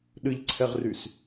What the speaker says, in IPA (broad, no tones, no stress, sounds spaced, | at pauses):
ɗ ɨ ʎ ǀʰ ɛ ʁ r y s